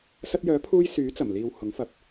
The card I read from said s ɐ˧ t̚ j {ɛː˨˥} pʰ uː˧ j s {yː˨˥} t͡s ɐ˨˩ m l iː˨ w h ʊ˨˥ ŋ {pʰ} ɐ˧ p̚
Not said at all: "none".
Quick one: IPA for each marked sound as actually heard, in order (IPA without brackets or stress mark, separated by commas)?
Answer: œː˨˥, yː˨˥, f